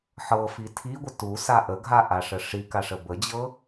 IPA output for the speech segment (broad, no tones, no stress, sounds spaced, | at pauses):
ħ ɤ f i tʰ i ɡʷ ə t u s a ʔ ə ɡʱ a ʔ a ʂ ə ʂ i k a ʂ ə b ə d͡ʑ ɤ